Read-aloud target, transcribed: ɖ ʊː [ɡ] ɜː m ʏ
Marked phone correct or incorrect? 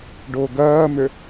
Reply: correct